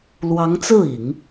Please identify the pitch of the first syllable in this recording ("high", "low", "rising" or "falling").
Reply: rising